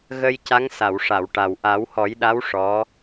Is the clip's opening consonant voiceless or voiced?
voiced